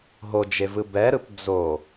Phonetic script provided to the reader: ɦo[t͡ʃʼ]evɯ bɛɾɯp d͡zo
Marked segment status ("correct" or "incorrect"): incorrect